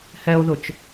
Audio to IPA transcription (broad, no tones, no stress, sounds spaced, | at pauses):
h ɛ o̯ ð ʊ t͡ʃ